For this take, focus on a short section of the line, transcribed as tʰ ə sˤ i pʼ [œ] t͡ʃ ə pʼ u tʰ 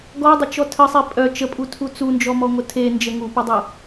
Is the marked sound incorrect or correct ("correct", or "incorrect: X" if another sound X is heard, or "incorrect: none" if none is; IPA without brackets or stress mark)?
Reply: correct